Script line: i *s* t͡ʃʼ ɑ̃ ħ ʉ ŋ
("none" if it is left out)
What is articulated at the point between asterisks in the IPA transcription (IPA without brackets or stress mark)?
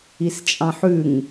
s